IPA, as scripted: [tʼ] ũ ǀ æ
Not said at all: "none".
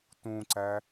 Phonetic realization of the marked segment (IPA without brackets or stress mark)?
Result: t